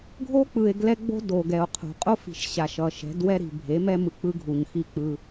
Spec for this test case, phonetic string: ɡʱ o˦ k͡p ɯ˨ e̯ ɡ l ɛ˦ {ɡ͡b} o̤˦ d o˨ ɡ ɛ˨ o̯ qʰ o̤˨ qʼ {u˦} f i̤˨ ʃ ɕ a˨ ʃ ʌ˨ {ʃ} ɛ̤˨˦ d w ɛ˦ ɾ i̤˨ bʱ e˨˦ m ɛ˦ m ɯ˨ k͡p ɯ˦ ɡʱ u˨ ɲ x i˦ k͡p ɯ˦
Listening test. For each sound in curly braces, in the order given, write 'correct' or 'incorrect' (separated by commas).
correct, incorrect, correct